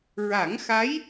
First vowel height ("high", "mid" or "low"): low